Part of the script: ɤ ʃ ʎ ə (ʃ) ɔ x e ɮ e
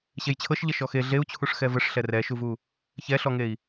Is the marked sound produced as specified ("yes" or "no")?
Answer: yes